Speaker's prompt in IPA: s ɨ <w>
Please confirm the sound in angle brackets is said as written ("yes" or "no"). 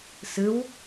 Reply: yes